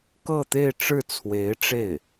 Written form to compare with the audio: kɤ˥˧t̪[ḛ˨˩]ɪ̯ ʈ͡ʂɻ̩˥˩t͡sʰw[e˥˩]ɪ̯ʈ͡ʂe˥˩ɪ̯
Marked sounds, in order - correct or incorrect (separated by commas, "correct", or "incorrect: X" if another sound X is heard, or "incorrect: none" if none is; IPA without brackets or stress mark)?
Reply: incorrect: e˥˧, incorrect: e˧˥